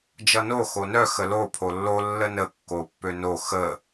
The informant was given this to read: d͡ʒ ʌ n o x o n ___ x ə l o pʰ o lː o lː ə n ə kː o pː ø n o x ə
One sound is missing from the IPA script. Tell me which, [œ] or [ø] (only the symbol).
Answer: œ